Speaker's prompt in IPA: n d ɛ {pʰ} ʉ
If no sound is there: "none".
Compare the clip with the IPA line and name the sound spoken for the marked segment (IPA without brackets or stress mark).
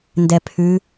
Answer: pʰ